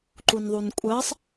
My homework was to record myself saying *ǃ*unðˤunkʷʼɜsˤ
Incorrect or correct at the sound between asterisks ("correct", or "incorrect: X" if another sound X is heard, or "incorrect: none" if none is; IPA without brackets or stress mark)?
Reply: correct